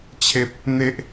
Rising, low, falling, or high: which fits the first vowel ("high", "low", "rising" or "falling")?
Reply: high